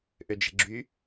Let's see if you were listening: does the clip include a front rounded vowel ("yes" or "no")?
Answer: yes